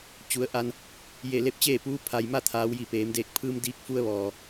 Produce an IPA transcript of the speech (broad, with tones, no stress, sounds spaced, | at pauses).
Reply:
t͡ɕ u˩˧ ə̯ ʔ a˧ n | j e˧˩ l e˥˨ p̚ t͡ɕ eː˥˨ p uː˧˥ pʰ a˩ j m a˥˨ t̪ʰ aː˩˧ w j i˧˩ p eː˩˧ m d eː˧˩ k̚ pʰ ɯː˧ m d iː˧ k̚ f u˧ ə̯ ʋ ɔː˩